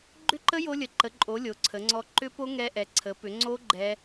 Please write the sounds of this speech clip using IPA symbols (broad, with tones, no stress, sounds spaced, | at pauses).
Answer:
ɡ͡ǃ ʏ˦˥ ǃ ə˦˥ j o˦˥ lʲ ə˨˥ ǃ ə˨˥ ǃʼ o˨˥ lʲ o˨˥ ǀʰ ə˨˥ ŋ͡ǀ ɔ˦˥ ǃ ʏ˦˥ p o˦˥ ŋ ɛ˦˥ ʔ ɛ˨˥ ǀʰ ə˨˥ p ʏ˨˥ ŋ͡ǀ o˦˥ ɡ͡ǃ ɛ˦˥